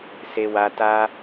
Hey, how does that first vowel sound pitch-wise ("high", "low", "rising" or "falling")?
high